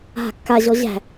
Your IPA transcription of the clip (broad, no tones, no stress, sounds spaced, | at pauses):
ɦ a̤ kː a ʑ ɔ ʑ æ̤